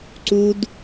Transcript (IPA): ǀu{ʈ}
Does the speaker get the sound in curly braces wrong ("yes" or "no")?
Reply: yes